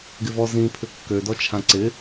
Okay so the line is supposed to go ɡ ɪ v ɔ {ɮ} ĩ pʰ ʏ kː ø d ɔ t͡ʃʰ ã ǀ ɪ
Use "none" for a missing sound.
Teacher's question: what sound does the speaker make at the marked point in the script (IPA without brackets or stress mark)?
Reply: z